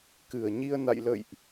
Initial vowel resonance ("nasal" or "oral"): oral